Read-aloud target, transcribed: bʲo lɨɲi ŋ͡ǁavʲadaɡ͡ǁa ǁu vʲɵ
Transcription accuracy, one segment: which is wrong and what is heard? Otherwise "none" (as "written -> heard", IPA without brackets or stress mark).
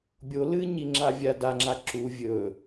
ɡ͡ǁ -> ŋ͡ǁ